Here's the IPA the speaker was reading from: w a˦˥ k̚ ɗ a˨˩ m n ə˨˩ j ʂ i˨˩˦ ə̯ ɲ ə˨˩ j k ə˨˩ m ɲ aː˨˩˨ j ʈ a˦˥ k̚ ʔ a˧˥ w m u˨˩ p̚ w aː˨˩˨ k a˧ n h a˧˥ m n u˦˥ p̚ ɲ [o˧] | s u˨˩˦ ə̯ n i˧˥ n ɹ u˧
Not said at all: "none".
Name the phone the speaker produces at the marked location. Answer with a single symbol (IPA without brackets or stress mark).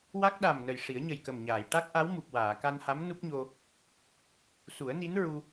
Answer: o˧